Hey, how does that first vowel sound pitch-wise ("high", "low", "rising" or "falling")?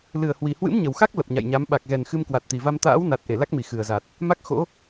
low